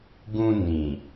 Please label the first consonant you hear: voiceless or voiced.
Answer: voiced